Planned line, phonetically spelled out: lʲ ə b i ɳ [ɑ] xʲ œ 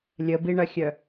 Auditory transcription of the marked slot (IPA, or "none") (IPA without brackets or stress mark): ɐ